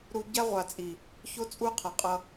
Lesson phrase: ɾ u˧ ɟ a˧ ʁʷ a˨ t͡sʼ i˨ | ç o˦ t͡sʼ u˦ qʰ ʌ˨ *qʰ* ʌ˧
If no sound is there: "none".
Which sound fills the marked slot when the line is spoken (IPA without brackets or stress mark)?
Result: qʼ